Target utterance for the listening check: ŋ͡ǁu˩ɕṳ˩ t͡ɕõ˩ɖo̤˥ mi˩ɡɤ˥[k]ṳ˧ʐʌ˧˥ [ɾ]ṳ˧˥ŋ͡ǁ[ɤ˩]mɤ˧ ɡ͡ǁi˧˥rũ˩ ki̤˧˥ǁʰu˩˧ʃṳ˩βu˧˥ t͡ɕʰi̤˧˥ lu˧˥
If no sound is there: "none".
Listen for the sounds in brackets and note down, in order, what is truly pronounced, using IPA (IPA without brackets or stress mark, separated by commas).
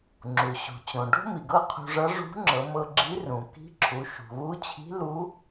qʰ, ʐ, ɤ˩˧